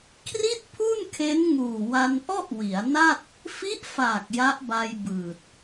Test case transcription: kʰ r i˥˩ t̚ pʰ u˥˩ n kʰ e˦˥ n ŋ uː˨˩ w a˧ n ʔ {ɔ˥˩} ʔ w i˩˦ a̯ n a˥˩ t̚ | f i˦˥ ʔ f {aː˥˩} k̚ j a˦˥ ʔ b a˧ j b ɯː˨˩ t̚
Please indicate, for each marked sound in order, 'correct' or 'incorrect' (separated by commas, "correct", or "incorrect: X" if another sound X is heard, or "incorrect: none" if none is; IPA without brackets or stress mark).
correct, incorrect: aː˨˩